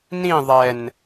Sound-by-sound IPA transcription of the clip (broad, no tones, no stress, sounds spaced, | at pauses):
n ĩ ðˤ ɛ n